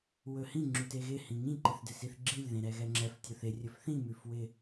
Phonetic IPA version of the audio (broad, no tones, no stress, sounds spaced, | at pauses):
w ɵ h ĩ ŋ͡ǁ ʉ t e ɣ ɪ h ĩ ŋ ĩ ǃ ɪ θ d ɪ s i θ ɡ͡ǁ i lʲ ð ẽ ɾ ɛ ɣ ɛ ŋ͡ǁ ɛ f tʲ ɵ θ ɪ rʲ ɵ f θ ĩ m ʉ f w ɪ